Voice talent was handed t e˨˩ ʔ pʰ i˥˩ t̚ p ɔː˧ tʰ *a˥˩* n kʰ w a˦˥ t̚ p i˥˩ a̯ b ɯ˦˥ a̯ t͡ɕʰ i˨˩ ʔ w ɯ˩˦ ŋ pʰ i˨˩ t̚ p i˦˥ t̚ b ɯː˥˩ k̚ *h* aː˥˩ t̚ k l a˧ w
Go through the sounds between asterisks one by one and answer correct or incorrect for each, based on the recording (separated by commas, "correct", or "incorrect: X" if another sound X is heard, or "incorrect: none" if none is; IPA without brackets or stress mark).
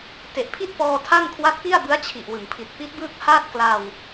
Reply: correct, correct